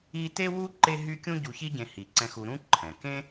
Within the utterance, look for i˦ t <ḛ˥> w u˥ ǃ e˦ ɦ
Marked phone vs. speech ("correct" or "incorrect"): incorrect